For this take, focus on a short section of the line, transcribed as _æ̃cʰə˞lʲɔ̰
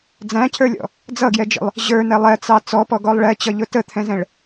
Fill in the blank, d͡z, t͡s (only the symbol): d͡z